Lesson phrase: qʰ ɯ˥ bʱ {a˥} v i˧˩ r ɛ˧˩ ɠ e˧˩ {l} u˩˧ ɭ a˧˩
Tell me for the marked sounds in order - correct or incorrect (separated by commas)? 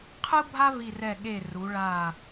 correct, incorrect